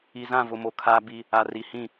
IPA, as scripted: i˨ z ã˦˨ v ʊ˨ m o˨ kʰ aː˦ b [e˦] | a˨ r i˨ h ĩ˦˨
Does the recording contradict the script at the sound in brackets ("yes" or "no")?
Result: yes